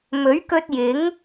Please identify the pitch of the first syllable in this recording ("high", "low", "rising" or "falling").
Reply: rising